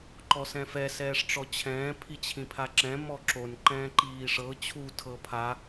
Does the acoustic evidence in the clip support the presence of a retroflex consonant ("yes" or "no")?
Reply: yes